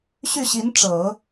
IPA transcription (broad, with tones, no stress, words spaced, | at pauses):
ɕy˥˩ɕi˧˥nʈ͡ʂɤ˨˩˦